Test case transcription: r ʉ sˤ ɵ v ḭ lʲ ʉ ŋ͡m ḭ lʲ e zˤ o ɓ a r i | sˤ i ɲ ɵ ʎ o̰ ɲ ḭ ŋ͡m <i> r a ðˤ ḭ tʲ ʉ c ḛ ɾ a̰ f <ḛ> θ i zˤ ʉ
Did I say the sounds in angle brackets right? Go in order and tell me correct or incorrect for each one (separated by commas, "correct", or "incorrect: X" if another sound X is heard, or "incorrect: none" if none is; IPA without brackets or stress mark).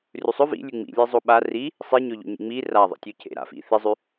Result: correct, incorrect: ḭ